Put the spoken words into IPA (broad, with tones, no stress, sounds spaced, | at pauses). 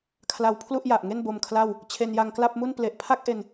kʰ l a˧ w pʰ l u˥˩ ʔ j a˨˩ ʔ ŋ e˥˩ n b o˧ m kʰ l a˥˩ w | t͡ɕʰ e˧ n j a˧ ŋ k l a˥˩ p̚ m u˥˩ n p l e˨˩ ʔ pʰ a˥˩ k̚ ʔ e˧ n